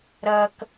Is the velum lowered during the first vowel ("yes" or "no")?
no